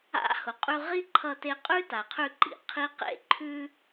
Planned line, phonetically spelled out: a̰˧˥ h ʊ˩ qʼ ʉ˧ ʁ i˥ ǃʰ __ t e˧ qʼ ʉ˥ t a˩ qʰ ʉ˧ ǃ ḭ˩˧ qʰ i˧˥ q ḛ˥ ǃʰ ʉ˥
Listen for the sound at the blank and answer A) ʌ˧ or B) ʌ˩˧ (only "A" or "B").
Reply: A